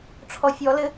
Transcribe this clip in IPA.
ʈ͡ʂʰ ɔ fʲ ɔ l ɘ

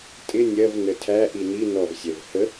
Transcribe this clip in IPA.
tʼ ɪ nʲ ɜ v n ə tʰ æ ʔ i n i n ɔ v sʲ ɛ v h ə

